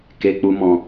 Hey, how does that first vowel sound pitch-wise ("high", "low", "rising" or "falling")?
low